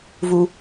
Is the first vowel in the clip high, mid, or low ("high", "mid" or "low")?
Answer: high